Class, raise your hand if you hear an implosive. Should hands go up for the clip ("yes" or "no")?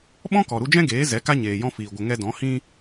yes